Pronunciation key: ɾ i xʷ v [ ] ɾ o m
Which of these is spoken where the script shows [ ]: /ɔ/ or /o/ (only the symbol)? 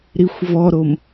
ɔ